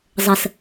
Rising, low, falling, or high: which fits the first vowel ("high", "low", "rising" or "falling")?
low